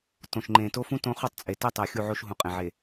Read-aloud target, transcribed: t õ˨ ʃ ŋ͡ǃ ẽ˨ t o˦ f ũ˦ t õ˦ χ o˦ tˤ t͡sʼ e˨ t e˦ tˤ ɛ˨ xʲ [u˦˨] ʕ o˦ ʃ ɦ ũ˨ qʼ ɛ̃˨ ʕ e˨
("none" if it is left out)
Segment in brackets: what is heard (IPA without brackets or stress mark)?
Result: u˦˨